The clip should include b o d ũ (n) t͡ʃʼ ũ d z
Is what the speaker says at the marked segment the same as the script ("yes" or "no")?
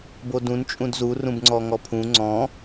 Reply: yes